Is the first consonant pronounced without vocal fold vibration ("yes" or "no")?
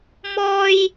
no